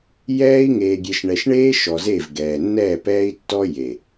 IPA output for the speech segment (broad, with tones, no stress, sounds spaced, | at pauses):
j ɛː˦ i̯ ŋ eː˨ ɡʲ e˨ ʃ ɳ ɛ˨ ʃ ɳ eː˦ ʃ ɔ˨ z e˦˨ v ɡ ɛː˨ nː ɛː˦˨ p ɛː˦ i̯ tː ɔ˦ j e˨